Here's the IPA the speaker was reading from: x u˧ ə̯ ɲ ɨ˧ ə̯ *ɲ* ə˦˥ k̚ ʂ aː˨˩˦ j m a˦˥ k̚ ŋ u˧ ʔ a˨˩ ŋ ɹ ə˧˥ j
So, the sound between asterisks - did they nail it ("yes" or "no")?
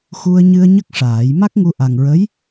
yes